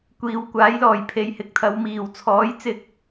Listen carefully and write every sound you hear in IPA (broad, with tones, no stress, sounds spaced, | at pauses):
kʷ iː˨ w kʷ aː˨˥ j l ɔː˨˩ j pʰ e˨ j h ɪ˨˥ k̚ t̪ʰ ɐ˨˧ w m iː˨˩ w t͡sʰ ɔː˨˥ j t͡s ɪ˧ k̚